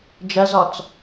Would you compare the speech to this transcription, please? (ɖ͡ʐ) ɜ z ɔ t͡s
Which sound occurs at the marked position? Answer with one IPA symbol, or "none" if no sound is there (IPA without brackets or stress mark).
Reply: d͡ʒ